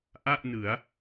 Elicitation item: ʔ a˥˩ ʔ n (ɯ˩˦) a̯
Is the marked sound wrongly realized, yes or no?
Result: no